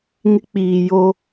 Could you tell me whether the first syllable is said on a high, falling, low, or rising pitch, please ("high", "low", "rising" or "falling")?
high